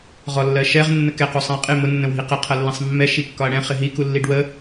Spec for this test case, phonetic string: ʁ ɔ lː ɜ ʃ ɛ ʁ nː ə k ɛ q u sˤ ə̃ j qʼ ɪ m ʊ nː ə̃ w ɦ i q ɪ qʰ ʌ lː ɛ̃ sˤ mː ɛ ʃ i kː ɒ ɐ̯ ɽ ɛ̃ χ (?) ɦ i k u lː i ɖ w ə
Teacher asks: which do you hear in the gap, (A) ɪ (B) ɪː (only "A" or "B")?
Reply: A